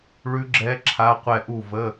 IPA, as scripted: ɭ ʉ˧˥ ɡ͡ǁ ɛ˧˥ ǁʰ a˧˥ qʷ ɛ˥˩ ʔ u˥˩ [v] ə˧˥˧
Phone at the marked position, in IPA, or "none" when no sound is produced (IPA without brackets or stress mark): v